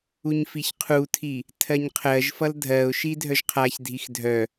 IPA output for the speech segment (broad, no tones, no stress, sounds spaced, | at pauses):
u ɲ f i ç qʰ u tʰ i | tʰ ɜ ɲ qʰ ɜ ʒ f ʌ l dʱ ɜ ʊ̯ ʃ i dʱ œ ʒ qʰ a ç dʱ i x dʱ œ